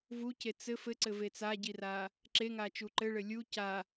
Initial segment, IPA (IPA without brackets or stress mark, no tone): v